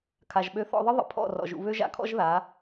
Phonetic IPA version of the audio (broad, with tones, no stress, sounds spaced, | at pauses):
kʰ a˩ ʒ ɓ ø˧ θ ɔ̰˧ ðˤ ə˥ ðˤ ə̰˩˥ pʰ ɔ̰˥˩ r ɔ̰˩ ʒ ṵ˧ β ø˥ ʒ a̰˧ kʰ ɔ̰˥ ʒ ð a˩˥